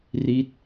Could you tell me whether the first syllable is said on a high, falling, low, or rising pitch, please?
falling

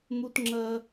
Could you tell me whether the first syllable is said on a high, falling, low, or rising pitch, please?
high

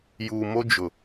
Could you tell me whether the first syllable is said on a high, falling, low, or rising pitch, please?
low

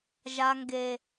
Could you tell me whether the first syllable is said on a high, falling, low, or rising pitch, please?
low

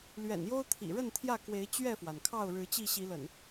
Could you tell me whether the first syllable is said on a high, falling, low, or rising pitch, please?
low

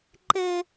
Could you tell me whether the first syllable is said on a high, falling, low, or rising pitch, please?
high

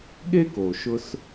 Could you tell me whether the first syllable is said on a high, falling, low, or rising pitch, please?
high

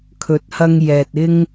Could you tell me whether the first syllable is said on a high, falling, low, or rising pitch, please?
rising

